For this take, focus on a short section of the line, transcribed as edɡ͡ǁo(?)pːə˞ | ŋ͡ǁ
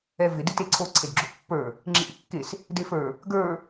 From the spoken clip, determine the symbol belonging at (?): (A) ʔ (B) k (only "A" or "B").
A